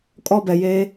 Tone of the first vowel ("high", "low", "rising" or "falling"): falling